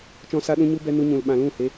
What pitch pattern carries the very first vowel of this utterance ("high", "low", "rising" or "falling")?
high